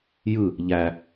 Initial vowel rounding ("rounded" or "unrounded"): unrounded